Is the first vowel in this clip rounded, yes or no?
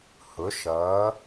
yes